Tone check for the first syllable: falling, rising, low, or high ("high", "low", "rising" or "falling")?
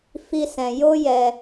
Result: high